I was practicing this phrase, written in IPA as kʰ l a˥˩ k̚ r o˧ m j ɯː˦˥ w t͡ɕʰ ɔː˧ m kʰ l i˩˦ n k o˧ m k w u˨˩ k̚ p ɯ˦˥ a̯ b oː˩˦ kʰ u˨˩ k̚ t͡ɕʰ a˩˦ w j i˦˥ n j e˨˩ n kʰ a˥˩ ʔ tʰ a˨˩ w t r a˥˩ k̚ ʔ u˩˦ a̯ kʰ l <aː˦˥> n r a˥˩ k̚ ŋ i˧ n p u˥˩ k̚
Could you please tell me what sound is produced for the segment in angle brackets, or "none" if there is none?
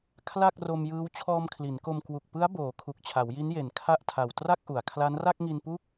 a˦˥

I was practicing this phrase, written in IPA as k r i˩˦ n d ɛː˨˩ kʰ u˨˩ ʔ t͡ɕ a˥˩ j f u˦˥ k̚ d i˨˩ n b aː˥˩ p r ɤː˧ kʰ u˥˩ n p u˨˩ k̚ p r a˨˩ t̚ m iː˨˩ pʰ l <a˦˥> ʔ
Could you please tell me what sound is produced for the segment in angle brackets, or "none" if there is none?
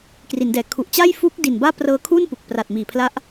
a˦˥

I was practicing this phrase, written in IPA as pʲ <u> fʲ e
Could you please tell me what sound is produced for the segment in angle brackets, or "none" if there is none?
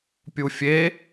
u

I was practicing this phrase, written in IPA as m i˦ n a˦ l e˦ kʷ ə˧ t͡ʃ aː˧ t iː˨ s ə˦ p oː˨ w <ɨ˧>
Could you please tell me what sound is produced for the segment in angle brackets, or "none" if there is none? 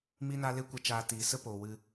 ɨ˧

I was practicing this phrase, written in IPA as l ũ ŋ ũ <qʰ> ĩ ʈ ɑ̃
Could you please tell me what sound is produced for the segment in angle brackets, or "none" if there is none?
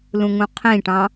qʰ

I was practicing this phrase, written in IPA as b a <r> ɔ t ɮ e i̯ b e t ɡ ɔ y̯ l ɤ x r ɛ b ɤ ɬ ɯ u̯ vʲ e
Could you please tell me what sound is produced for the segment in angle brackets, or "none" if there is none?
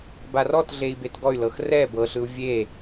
r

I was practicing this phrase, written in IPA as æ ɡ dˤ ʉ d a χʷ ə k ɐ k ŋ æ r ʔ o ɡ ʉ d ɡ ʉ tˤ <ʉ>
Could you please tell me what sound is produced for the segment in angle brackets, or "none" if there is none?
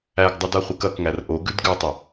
ə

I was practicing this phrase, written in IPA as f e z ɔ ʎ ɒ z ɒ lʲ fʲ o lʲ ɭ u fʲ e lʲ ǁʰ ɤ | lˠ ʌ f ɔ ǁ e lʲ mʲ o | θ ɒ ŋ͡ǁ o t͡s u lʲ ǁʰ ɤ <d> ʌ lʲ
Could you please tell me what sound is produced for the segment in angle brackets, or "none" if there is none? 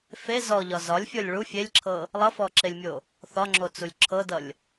d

